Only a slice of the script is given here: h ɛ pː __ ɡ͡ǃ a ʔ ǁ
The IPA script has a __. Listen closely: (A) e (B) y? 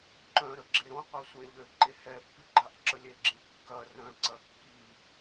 B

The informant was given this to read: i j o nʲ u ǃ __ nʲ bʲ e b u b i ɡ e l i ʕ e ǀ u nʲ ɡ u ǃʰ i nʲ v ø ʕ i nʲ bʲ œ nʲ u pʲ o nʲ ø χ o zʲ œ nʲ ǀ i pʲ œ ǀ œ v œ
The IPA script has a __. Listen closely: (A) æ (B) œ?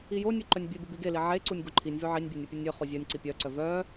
B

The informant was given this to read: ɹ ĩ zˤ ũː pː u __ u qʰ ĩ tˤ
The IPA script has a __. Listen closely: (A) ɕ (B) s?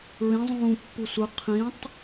B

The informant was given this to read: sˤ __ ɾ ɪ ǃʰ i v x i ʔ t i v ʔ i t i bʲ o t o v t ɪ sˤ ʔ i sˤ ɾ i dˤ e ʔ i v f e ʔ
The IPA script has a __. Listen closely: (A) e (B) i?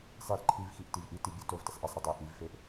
B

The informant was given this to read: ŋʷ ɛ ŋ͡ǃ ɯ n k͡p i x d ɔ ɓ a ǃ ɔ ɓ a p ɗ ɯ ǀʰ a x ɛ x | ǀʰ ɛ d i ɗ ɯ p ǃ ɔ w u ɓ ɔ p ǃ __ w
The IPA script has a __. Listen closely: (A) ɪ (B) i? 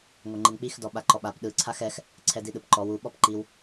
B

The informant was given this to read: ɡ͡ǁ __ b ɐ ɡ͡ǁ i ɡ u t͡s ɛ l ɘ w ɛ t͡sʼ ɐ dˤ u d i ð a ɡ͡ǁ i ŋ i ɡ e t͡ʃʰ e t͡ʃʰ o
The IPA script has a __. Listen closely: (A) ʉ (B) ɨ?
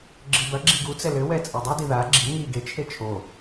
B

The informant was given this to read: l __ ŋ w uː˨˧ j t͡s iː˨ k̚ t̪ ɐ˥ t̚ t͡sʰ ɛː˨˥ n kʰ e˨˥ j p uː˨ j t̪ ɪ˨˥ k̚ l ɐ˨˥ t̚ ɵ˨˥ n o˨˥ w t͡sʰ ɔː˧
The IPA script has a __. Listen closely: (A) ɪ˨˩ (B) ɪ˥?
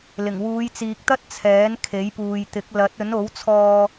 A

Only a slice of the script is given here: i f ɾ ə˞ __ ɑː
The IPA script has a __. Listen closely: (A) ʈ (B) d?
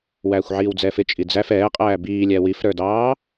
B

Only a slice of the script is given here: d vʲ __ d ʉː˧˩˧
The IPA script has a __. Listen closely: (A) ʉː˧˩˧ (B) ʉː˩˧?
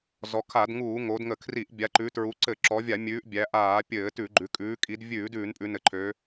A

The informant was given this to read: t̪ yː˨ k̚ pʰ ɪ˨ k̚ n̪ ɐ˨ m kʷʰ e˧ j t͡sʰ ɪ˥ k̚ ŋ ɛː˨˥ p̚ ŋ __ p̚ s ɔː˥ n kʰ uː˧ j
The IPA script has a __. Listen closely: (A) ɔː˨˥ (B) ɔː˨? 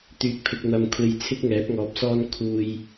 B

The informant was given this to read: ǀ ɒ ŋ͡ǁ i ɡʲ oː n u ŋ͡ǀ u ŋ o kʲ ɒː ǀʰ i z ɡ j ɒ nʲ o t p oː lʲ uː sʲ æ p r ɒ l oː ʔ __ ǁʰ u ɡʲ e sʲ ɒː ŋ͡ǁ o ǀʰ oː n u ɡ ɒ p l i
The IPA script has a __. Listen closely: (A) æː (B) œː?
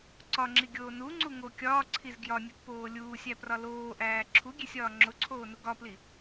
A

